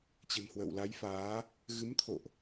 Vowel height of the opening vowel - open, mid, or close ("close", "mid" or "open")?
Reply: mid